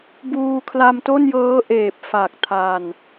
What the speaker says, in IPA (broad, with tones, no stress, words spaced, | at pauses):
buː˧kʰla˧mto˥˩njɤː˦˥ ʔeː˨˩p̚fa˨˩k̚tʰa˨˩n